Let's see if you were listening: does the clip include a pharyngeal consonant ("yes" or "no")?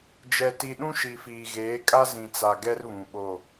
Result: no